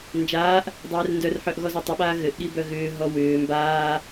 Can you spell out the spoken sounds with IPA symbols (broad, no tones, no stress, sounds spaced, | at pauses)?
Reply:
n d͡ʒ aː ʔ | dˤ ɛː r n d œ r ħ œ ʔ ɣ ɔ z œ tˤ ʏ ɓ aː ɣ ɘ ʔ ɠ i b œ ɣ ʏː ɦ ɔ w ʏː m b aː